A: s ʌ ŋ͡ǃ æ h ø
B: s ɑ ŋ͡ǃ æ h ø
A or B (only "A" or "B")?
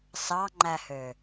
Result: B